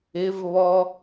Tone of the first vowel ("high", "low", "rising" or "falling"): rising